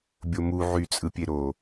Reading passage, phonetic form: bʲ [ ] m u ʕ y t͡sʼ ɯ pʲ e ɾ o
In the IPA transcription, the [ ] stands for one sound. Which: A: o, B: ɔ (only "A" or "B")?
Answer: A